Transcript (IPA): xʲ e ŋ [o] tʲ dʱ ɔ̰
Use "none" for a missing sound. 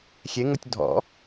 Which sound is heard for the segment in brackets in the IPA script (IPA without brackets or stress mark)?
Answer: o